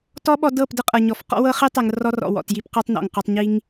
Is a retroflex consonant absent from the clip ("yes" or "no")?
yes